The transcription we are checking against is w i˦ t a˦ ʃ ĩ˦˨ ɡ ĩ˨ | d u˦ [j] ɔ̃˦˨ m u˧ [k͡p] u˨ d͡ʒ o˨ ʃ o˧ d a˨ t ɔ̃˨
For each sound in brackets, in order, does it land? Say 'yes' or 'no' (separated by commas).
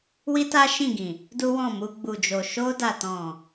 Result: no, no